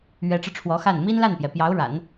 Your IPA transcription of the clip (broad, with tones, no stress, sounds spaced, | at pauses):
ɥ ɛ˧˥ ʈ͡ʂ ɻ̩˧ ʈ͡ʂʰ w ɔ˧˥ x a˥˩ n m i˥ n l a˥˩ n p j ɛ˩ p j ɑ˧˥ ʊ̯ ɻ a̰˨˩˦ n